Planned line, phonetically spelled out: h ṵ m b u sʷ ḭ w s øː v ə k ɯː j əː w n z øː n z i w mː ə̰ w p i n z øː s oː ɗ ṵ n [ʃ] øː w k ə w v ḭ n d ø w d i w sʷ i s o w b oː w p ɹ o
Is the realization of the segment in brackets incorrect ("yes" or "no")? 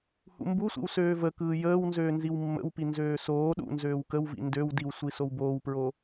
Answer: yes